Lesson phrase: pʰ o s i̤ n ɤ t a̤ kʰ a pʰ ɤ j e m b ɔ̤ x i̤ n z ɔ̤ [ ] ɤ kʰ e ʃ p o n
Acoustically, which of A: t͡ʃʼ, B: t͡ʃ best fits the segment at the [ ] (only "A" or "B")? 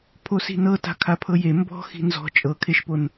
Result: A